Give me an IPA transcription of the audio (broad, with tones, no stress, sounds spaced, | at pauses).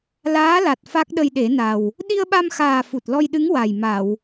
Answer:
l aː˧˥ l a˨˩ t̚ f a˦˥ k̚ ɗ ə˧ j ɗ e˨˩˦ n a˨˩ w | ɗ i˧ ə̯ ɓ a˧ m x aː˨˩ f u˨˩ t̚ l ɔ˧ j ɗ ɨ˧˥ ŋ w a˨˩ j m a˨˩˨ w